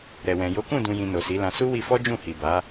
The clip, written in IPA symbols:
ɾɛ˨wɛ̃˨ jo˨˦kũ˦˨dũ˨jĩ˨ no˨si˨˦lã˧ su˦wi˧fɔ˦ d͡ʒũ˦˨ hi˨ba˨˦

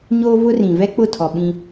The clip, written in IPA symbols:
ɲoː˦vʊ˦ rĩ˨ vɛ˦k͡pʊ˦˨tʰɔ˨ ɓĩ˦

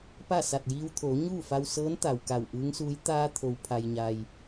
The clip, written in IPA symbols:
pa˥˨sa˧˩t̚jiː˧wt̪ʰoː˩˧ ɲuː˥˨fa˧wsɤː˧˥n t̪a˩wka˧˩wʔɯː˧˥ŋsuː˧˥j t̪aː˧t̪ʰo˩wpʰa˩jɲa˩j

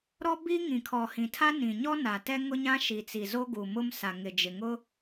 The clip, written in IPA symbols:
ɾɔ˦bi˦ ŋĩ˨kʰɔ˨hĩ˨tʰa˦ nĩ˨ɲɔ˦ na˨tɛ˦ŋʊ˦ɲã˦ ʃi˨t͡si˨zo˦ ɡu˨mʊ˦msa˨ŋɪ˨ d͡ʒɪ˨ŋʊ˦

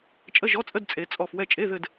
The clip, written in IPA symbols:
t͡ʃʼə˧˥˧ʒɔ˧˥˧t͡sʼə˧˥˧d t͡sʼe˨˦t͡sʼɔ˦˨f wɛ˦˨t͡ʃʼe˧˥˧ðɘ˦˨d

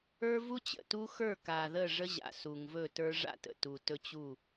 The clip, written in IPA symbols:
ə˞˦vu˦t͡ɕə̰˨tu˦ xə˞˦˨ka˨ ðə˦˨ʐə˦ʑa̰˨ su˨ŋvɵ˦˨tə˞˦ ʐa̰˦tə̰˨ tu˨tɵ˦ t͡ɕu˦˨

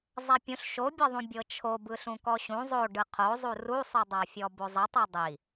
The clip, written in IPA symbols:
zˤɛpʲũɬ ʃobʲɛðˤũ bʲɤt͡ʃʰobɯ ɬũkɔɕũ zˤoɖɯ qʰozˤu rusˤudˤafʲɔ bozˤitˤi dˤi

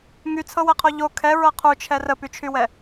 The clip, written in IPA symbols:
ŋyt͡sʰɤwɛqʰo ʎo kʰɛɹɤ qʰut͡ʃʰɛ rəpyt͡ʃʰywɛ

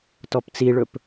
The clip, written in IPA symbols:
tɔpt͡siɭɵp

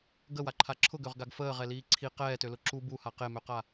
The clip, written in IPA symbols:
ɡəwaǃʰa ǁʰʊɡøʁɡaɡ fəːʁɛliː ǀʰi qɛːtølʊ ǁu buha qemøqa

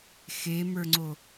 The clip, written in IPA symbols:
xemə˞ŋ͡ǀo

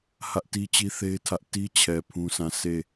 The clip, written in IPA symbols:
hä˦ʔti˦t͡ɕi˦θe˦ɪ̯ tʰä˦ʔ ti˦t͡ɕʰɛ˨ pʰũ˦sã˦˨ sʰe˦˨

